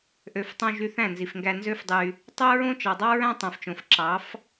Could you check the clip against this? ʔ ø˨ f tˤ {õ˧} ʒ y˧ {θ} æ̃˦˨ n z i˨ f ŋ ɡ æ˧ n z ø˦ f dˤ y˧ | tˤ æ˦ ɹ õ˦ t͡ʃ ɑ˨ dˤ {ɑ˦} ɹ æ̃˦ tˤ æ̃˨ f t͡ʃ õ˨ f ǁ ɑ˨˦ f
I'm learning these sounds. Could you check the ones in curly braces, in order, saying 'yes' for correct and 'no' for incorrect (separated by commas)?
yes, yes, yes